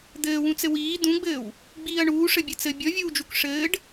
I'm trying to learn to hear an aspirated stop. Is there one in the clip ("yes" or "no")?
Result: no